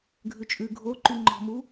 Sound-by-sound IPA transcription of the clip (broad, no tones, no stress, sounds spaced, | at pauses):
ɡʱ ʉ t͡ʃʼ ʉ ɡʱ o ǃ y ŋ͡ǃ ɔ̤ m u